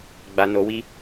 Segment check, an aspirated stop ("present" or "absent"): absent